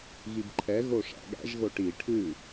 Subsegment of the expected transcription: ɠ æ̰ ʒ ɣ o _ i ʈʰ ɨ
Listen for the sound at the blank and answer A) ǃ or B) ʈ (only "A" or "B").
B